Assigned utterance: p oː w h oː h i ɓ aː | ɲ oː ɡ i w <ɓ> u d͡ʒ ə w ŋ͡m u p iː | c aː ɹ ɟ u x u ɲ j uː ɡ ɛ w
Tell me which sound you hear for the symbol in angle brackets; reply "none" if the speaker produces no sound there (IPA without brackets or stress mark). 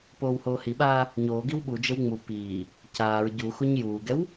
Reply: ɓ